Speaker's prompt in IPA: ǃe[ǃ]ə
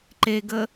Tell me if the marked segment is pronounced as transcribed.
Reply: no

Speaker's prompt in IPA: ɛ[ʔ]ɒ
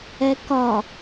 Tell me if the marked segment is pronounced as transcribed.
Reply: no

